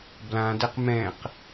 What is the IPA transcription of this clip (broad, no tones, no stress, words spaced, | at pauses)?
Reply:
blãdɛq mɛ̃q